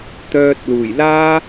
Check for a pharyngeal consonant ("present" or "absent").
absent